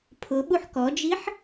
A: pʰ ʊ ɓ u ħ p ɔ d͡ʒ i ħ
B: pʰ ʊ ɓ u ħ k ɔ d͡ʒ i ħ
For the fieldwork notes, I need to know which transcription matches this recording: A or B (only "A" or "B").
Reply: B